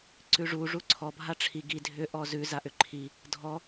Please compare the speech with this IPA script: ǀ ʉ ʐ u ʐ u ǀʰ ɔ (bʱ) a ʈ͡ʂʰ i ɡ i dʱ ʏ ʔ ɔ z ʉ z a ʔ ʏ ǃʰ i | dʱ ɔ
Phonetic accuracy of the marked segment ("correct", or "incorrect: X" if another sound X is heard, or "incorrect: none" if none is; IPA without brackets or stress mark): correct